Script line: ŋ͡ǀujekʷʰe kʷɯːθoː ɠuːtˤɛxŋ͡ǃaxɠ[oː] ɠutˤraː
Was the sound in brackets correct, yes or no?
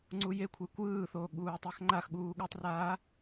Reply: no